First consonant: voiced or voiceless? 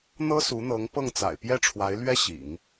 voiced